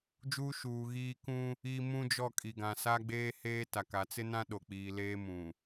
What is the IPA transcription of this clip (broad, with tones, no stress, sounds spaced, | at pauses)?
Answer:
d͡ʒ uː˦ ʃ uː˨ ɣ iː˦ k ũ˦ | i˦ m ũ˦ d͡ʒ ɔ˦˨ kʼ i˨ ɡ ã˨ s a˦ ɡ͡b eː˦ h eː˦ t a˨ k a˨˦ t͡s ɪ˦ n ã˦ ɗ o˨ k͡p iː˨ l eː˦ m ũ˨